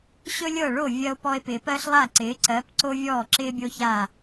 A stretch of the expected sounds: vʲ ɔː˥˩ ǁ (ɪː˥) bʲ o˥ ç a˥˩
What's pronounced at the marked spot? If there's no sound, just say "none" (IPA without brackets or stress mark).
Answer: ɪː˥